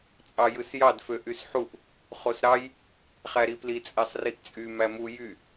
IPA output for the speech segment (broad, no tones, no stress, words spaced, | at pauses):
t͡sʼɑjɯsjɑd føʔysħuʔ | χosɾɑj | χæɾipli t͡sʼæsˤriʔt͡sʼy mæmu jy